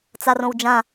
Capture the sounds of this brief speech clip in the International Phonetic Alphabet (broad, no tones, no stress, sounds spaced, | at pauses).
t͡s a r õ w d͡ʒ ã